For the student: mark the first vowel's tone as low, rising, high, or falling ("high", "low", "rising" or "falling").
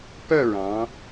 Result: falling